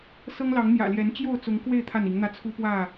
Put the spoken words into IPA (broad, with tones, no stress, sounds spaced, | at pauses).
s ɤ˦ ŋ l ɑ˨˦ ŋ n̪ j ä̰˨˩ l j ɛ˨˦ n t͡ɕ j o˥˨ ʊ̯ t͡s ʊ˨˦ ŋ k w e˥˨ ɪ̯ t̪ʰ a˥˨ n i˨˦ ŋ n̪ ä˦ t͡sʰ u˦ p w ä˥˨